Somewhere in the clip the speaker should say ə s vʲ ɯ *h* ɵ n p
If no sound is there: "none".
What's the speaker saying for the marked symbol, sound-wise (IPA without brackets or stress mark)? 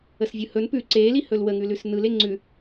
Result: h